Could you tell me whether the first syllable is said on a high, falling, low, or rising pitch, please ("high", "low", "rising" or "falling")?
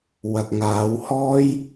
low